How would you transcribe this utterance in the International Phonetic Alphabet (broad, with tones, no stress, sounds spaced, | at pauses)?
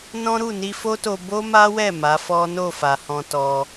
n ɔ̃˦ ɾ u˦˨ n i˧ f o˦ t o˧ b o˦ m a˦ w ɛ˦˨ m a˨˦ f ɔ˦ n o˦˨ f a˨ h ɔ̃˧ t ɔ˧